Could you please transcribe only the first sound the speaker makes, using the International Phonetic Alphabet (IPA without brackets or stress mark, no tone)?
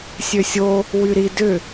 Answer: sʲ